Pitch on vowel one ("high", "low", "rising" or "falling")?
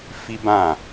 high